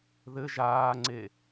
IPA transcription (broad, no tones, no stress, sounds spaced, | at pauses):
ð ɘ ʒ aː ŋ͡ǀ e